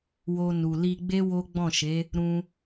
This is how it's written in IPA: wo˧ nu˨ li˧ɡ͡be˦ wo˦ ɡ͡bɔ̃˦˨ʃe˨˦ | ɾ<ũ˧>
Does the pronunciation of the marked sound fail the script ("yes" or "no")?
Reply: no